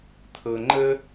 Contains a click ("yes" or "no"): yes